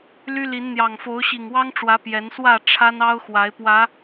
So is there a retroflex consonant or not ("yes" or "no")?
yes